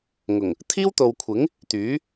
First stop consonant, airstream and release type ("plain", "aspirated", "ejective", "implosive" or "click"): aspirated